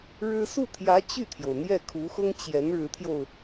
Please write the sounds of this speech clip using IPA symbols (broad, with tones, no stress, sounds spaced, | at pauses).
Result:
ɻ ɻ̩˥ s u˥˩ t̪ʰ j ä˧˥ t͡ɕ y˥˩ t̪ʰ j o˩ ʊ̯ n̪ j ɛ˥˩ kʰ u˧˥ x ʊ˥ ŋ t͡ɕ j ɛ˧˥ n ɻ ɻ̩˧˥ t̪ʰ j o˧ ʊ̯